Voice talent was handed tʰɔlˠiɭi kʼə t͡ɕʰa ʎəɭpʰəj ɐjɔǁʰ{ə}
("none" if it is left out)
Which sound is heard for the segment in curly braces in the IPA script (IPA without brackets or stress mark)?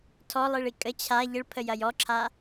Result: a